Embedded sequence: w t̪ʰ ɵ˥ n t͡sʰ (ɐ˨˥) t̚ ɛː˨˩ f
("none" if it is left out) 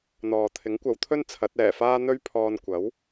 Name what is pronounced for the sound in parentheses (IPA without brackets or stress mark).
ɐ˨˥